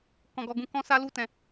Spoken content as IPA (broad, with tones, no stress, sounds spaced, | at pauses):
k ɔ̃˨ ɡ ɔ˨ ɡ ũ˧ k ɔ̃˦ s a˦ l u˦˨ t ɛ̃˨